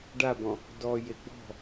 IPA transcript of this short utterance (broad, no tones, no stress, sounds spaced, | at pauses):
ɖ a b ɔ̃ | d ɔ j e ɡ͡b ɔ̤